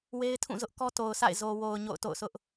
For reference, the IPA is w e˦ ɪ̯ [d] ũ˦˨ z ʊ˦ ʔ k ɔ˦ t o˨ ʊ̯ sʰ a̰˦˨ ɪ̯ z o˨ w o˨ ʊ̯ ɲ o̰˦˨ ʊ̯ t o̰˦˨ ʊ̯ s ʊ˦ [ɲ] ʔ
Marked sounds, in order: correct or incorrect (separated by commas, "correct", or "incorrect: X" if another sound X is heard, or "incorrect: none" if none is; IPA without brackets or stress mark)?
incorrect: tʰ, incorrect: none